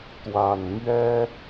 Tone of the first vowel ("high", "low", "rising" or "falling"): low